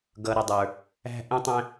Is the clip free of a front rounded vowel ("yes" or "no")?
yes